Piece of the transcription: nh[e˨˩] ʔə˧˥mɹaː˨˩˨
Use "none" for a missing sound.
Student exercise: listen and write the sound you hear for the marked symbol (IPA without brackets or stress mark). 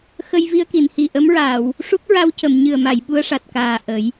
i˨˩